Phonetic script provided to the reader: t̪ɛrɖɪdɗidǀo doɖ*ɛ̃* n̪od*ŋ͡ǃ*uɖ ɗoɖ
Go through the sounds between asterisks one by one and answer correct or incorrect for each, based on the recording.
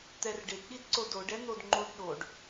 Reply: incorrect, correct

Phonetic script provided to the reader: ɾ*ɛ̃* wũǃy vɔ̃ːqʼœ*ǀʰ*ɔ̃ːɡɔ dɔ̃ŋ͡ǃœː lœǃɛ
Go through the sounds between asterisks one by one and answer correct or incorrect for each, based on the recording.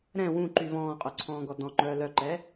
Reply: correct, correct

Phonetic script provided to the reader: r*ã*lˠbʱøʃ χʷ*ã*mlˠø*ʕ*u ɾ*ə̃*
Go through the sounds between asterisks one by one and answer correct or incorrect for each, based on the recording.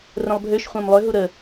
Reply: incorrect, correct, incorrect, incorrect

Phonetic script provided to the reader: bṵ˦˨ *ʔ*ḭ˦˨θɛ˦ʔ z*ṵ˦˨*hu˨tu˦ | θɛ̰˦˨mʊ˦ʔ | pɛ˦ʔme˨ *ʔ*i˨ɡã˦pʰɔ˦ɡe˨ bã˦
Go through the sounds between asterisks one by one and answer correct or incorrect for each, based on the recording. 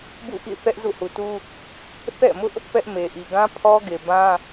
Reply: correct, correct, correct

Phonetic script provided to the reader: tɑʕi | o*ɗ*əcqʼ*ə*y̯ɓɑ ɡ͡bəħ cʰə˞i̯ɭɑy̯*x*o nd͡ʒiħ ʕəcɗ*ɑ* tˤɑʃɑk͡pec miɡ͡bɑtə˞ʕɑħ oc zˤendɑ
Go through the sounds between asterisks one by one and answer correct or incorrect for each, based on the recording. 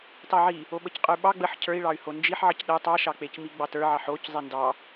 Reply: incorrect, correct, incorrect, incorrect

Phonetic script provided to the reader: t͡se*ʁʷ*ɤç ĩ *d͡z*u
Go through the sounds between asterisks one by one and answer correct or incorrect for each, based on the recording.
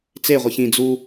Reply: correct, correct

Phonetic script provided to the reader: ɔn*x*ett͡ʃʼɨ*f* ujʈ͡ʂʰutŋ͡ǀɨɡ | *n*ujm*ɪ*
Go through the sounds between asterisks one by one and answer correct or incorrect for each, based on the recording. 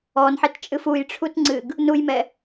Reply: incorrect, correct, correct, incorrect

